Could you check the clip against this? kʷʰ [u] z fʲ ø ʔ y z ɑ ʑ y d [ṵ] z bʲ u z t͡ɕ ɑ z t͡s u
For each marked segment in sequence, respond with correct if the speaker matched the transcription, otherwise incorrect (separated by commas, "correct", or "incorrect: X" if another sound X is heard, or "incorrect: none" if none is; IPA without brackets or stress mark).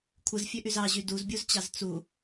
incorrect: ɯ, incorrect: u